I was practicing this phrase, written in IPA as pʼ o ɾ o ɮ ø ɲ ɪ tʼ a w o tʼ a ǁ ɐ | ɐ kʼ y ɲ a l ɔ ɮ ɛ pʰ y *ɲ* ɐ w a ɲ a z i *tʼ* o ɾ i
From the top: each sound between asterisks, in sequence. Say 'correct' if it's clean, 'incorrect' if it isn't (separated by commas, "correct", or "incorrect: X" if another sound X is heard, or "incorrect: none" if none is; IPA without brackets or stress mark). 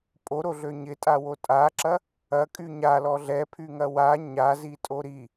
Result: incorrect: ŋ, correct